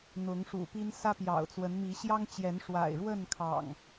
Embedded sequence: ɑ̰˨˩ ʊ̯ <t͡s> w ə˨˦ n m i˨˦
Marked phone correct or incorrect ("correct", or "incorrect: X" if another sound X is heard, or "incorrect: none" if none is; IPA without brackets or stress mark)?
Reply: correct